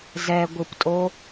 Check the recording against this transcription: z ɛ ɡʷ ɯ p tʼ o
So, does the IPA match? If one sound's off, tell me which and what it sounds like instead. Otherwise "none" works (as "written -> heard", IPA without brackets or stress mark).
none